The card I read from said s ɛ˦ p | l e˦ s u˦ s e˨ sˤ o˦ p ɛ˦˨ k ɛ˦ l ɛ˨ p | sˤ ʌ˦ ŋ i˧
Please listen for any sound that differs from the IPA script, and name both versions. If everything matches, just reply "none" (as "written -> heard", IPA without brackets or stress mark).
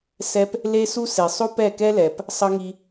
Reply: none